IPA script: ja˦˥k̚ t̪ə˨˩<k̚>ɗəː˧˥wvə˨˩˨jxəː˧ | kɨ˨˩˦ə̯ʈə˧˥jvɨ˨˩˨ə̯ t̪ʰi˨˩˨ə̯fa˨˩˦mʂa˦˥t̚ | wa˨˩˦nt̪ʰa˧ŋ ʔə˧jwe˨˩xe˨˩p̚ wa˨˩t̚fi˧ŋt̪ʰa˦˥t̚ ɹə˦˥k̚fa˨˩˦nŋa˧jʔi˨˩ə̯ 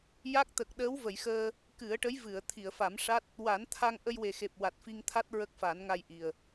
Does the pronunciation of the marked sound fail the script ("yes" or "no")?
no